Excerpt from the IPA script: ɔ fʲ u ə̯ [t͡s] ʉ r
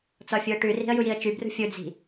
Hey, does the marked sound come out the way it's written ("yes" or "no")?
no